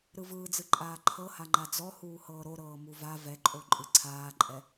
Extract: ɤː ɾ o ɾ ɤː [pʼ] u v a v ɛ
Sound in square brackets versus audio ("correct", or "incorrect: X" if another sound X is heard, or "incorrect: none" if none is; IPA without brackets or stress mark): incorrect: m